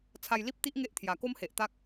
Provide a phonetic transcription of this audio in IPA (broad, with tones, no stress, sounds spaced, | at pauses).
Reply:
t͡sʰ a˧ j l i˦ p̚ t̪ i˦ ʔ ŋ e˦ ʔ t̪ʰ j a˨˩ k o˦ m h e˨ ʔ t̪ a˦ k̚